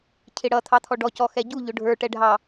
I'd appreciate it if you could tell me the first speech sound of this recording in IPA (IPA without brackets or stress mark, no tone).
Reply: cʰ